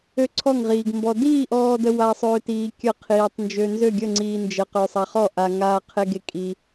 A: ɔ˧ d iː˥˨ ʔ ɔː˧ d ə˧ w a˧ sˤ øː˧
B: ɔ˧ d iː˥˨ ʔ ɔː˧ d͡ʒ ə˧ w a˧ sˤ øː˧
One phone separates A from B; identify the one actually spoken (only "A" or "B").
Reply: A